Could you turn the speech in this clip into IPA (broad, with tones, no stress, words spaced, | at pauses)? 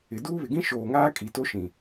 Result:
ɪ˨ duː˦βɪ˨ɡĩ˦ ʃoː˨ŋaː˦ kʼi˨to˦ʃĩ˨